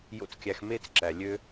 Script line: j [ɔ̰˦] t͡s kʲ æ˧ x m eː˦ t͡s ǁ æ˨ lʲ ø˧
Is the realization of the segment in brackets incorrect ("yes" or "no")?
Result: yes